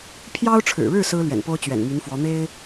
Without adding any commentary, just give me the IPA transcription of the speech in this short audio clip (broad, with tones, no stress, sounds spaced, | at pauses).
pʰ j ɑ˥ ʊ̯ ʈ͡ʂʰ ɻ̩˨˩ ɻ ɻ̩˥˩ s ɹ̩˥ l ɥ ɛ̰˨˩ n p o˥ ʊ̯ t͡ɕ ɥ ɛ̰˨˩ n m y˧˥ n f w ɔ˧˥ n̪ e˥ ɪ̯